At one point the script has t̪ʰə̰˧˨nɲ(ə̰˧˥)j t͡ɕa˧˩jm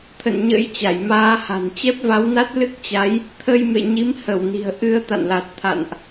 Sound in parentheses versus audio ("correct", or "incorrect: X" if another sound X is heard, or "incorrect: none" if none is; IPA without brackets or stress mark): correct